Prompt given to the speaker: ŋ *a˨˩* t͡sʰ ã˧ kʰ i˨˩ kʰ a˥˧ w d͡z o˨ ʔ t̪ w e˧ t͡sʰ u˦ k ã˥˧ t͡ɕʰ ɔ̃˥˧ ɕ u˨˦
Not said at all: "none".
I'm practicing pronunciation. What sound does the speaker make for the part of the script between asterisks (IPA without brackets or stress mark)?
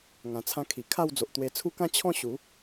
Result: ã˨˩